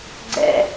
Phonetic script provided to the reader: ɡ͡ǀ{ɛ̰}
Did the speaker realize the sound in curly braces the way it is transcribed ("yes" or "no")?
yes